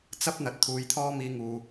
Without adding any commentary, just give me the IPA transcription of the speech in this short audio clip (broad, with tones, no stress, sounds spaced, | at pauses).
t͡s ɐ˥ p̚ n̪ ɐ˨ t̚ t̪ʰ uː˨˧ j t̪ʰ ɔː˥ m iː˧ ŋ uː˨